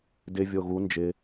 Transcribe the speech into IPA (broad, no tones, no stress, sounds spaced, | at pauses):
d ɪ vʲ o ɣ u n d͡ʒ ɪ